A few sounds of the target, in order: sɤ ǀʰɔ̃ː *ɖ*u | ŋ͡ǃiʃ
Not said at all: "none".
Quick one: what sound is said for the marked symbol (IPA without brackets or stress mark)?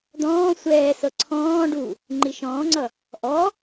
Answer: ɖ